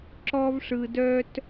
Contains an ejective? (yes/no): no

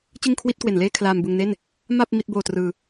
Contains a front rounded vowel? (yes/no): no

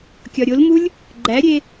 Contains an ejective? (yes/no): no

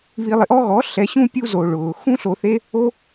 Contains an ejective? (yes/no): no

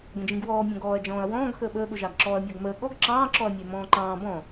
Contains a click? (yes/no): yes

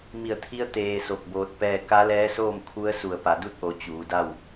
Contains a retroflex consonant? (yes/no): no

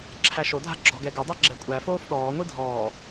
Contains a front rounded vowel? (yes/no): yes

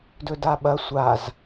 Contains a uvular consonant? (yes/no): no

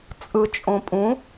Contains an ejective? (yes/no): yes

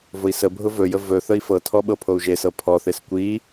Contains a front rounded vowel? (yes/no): no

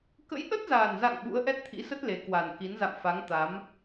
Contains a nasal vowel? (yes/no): no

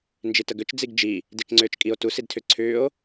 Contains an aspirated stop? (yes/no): yes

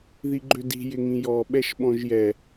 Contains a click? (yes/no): yes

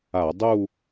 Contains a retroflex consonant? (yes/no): no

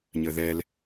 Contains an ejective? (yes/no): no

